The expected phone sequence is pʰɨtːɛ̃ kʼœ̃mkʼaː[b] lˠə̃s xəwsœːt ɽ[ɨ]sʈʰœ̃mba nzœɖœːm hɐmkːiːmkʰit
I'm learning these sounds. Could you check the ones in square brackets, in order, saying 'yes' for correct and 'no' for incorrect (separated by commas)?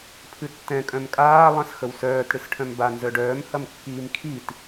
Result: no, yes